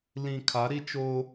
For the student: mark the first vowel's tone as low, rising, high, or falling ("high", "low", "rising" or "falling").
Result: low